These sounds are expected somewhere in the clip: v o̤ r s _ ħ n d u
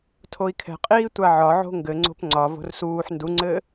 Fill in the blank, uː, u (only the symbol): uː